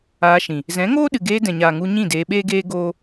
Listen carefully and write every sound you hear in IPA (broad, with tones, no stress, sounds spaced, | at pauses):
aː˧ ʃ ĩ˨ | z ɛ̃˨˦ ŋ oː˦ ɗ ɨ˨ ɡ eː˧ d ɛ̃˨ ɲ aː˨ ŋ u˧ ɲ ĩ˦˨ d eː˧ ɓ eː˦ ɡ eː˦ ɡ oː˦